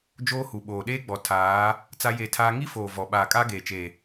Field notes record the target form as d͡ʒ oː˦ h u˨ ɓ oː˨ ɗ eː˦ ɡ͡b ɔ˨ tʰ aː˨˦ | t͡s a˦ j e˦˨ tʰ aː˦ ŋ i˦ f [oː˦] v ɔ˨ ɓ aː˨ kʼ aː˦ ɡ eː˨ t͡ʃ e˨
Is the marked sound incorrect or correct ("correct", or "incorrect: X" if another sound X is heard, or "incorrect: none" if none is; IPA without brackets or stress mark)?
incorrect: oː˨